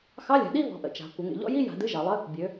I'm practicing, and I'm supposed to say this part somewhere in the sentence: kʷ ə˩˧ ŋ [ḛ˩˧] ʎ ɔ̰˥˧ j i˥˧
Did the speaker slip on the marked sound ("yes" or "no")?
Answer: no